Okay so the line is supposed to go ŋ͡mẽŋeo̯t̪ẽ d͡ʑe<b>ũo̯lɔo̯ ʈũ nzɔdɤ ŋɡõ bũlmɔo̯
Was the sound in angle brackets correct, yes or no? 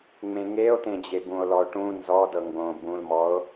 yes